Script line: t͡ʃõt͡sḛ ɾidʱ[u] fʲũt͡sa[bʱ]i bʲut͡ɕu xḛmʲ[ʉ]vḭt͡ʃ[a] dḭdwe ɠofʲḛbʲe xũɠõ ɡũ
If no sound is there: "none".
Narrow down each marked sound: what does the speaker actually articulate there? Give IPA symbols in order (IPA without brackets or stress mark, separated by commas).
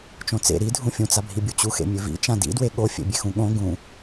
ũ, bʱ, ʉ, ã